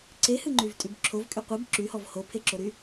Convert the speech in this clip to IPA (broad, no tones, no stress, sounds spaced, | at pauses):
ǀ e h ɨ ŋ͡ǃ y v tʼ y b ǁʰ o v kʼ y qʷ ɨ b ǁ y h ɔ v h o pʰ e ǁ o ɾ y